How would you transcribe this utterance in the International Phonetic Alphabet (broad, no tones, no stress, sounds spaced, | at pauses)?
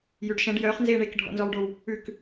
j ʉ ɖ ʃ ɛ̃ ɖ j œː χ n z eː ɳ e k ɖʱ ɔ̰ n z ɔ w ɖ o w | ʉ k